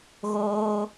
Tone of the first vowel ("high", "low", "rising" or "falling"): high